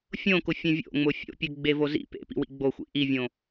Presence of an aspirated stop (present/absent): absent